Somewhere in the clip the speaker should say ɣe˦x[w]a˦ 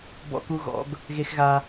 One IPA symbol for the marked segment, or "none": ɣ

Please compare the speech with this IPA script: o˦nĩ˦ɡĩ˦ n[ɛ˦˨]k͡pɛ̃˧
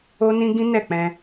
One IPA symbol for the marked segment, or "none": ɛ˦˨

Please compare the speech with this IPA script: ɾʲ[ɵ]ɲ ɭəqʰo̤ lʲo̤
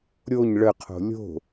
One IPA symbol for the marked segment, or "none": o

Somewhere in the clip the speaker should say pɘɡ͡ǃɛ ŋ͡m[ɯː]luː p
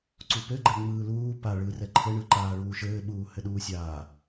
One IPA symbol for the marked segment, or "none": ɯː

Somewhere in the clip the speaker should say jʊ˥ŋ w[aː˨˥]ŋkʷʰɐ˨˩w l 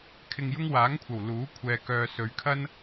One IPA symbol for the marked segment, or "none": aː˨˥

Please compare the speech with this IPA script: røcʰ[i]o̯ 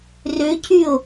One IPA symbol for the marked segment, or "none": y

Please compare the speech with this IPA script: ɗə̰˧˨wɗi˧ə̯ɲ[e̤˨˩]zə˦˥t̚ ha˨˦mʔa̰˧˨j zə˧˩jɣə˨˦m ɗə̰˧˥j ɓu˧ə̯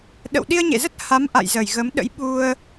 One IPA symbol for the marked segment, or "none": ḛ˧˨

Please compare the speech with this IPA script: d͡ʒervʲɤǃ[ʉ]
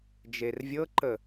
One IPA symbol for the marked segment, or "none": ə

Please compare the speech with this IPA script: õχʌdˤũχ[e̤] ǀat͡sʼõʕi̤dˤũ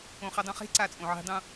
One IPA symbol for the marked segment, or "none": e̤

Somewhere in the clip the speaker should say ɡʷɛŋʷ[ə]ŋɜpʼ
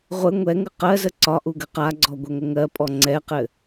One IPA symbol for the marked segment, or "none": ə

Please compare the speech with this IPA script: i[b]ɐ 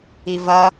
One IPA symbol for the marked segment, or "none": v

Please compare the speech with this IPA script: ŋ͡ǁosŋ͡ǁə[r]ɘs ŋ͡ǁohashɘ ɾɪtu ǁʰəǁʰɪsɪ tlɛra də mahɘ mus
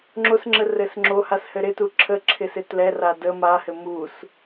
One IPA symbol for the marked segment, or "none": r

